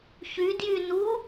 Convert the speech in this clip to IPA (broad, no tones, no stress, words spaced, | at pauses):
çy djynu